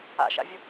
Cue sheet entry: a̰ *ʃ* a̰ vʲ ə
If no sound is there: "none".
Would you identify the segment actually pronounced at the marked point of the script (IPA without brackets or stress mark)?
ʃ